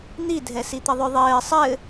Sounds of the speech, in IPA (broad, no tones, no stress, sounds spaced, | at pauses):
n̪ i dʱ ɛ s i t̪ ə ðˤ ʏ ðˤ ɘː sˤ ɘ